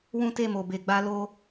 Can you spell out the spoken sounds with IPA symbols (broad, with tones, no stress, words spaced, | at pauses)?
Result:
wũ˦te˦˨mo˨ be˨ ɡ͡ba˧lo˧